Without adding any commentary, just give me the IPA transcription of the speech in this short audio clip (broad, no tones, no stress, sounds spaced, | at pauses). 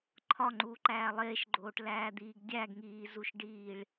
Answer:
ǃʰ ɒ ŋ͡ǃ uː ǃ æː lˠ eː ʃ ɡ͡ǃ oː ʈ l æː d̪ iː ɡ dʲ æ ɡ ŋ iː z u ʃ ɖ iː ɭ